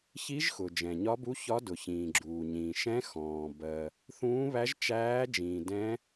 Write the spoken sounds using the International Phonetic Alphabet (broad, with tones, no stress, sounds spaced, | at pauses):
ç i˦˥ ʒ x ʊ˨ d͡ʒ ɛ̃˨ ɲ ɒ˦˥ b u˦˥ ç ɒ˦˥ d ʊ˨ ç ĩː˨ ɡ͡ǁ uː˨ ɲ ĩː˨ ʃ ɛ̃˦˥ x ɔ̃ː˨ b ɜ˨ | θ ũː˦˥ β æ˦˥ ʒ t͡ʃ æː˦˥ d͡ʒ ĩː˨ d ɛ̃˦˥